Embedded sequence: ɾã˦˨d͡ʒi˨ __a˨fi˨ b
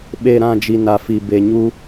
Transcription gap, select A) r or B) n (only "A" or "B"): B